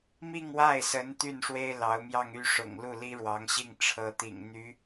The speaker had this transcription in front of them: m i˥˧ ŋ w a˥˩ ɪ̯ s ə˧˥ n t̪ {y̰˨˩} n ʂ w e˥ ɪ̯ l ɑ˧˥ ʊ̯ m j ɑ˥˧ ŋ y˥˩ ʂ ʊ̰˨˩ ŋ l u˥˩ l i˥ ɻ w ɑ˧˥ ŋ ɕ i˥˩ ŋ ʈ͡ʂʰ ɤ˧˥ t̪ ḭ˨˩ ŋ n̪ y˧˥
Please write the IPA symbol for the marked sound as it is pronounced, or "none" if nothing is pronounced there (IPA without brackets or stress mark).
y˥˩